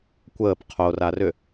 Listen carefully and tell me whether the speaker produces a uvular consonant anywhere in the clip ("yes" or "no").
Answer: yes